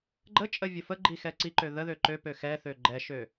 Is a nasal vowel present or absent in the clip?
absent